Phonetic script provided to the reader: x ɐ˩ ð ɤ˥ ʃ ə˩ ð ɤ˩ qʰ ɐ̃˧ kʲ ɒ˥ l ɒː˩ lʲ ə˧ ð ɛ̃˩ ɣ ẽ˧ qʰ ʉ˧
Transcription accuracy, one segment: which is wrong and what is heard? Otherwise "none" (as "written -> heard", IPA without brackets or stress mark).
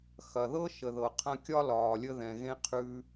none